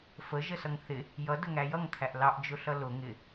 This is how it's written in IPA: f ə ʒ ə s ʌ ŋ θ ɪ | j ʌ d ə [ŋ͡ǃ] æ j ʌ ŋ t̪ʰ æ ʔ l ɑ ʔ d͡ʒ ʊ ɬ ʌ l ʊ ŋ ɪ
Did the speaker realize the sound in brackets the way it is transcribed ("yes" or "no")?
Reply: no